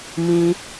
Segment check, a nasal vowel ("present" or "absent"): present